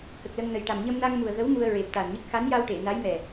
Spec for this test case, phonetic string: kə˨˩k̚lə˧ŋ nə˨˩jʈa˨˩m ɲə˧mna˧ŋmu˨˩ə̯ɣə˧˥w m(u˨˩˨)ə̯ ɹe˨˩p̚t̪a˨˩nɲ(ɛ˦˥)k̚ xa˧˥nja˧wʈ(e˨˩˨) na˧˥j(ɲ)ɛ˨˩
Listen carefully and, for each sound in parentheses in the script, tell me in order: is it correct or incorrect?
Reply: incorrect, incorrect, correct, incorrect

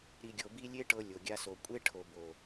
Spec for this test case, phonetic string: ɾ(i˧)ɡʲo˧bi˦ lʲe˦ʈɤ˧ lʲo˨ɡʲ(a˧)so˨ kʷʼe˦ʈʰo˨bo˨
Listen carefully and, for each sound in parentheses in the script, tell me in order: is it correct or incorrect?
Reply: correct, correct

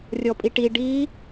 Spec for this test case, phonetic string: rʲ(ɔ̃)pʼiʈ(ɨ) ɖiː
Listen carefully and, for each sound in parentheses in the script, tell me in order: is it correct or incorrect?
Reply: incorrect, incorrect

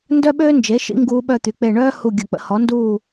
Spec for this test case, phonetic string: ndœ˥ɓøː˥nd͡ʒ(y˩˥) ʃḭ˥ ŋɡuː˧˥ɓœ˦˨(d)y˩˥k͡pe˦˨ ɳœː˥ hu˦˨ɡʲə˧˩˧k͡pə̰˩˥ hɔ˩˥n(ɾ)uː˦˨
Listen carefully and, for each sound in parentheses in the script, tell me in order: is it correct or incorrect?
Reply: incorrect, incorrect, incorrect

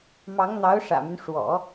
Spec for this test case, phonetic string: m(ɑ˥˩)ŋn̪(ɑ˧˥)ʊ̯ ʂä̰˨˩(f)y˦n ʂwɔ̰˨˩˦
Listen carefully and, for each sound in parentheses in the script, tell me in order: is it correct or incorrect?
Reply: incorrect, correct, incorrect

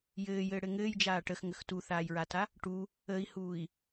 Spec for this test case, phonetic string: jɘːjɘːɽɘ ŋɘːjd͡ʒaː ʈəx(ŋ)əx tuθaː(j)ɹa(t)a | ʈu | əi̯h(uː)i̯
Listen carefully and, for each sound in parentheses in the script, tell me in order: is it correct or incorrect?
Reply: correct, correct, correct, correct

